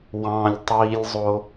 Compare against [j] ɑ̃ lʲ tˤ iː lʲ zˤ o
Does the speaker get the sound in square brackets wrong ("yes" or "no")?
yes